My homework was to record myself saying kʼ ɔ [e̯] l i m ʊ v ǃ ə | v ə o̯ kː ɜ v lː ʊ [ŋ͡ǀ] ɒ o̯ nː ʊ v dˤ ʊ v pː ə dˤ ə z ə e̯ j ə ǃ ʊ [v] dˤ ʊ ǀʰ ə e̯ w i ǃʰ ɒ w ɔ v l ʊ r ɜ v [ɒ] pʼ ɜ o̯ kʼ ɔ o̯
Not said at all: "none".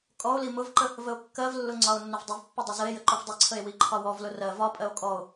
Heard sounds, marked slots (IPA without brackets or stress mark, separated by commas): o̯, ŋ͡ǀ, v, ɒ